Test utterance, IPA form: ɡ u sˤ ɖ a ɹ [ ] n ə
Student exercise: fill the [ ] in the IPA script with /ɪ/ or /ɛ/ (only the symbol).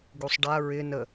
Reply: ɪ